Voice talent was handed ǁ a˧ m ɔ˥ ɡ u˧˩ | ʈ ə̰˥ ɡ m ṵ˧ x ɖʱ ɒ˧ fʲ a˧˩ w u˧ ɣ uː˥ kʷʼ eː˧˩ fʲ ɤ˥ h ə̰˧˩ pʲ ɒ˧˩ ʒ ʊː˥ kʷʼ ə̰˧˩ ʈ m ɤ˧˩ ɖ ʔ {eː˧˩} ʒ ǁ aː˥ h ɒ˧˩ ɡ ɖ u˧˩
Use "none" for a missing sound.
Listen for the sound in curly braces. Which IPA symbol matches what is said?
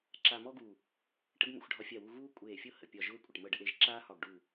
e˧˩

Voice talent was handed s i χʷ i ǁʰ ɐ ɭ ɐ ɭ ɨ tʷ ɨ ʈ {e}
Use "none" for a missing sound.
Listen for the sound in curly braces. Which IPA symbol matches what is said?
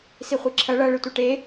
e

